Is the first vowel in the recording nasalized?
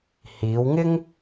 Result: no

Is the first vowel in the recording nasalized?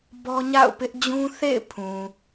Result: no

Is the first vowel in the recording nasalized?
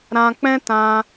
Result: yes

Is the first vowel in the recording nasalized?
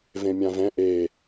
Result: yes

